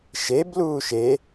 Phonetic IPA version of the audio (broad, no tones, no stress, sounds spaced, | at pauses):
ʃ e b l uː ʃ e